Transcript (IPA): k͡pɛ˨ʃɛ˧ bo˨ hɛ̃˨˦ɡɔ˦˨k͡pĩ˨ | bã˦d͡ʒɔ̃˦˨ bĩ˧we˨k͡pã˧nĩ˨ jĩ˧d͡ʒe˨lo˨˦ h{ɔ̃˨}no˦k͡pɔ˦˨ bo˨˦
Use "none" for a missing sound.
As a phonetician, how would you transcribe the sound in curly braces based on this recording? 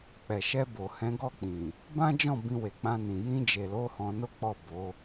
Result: ɔ̃˧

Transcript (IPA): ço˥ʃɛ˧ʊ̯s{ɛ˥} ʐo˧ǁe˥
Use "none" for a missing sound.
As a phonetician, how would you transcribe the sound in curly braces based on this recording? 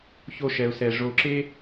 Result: ɛ˧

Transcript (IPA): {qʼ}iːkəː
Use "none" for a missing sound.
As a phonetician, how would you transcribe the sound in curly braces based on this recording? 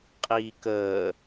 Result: qʼ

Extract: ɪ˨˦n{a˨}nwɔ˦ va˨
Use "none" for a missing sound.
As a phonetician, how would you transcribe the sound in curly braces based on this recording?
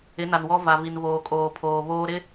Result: a˨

